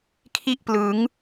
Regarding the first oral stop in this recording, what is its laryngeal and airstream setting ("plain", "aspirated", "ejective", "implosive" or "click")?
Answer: aspirated